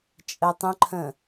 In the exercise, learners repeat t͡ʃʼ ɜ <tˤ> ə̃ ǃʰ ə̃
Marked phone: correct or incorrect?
correct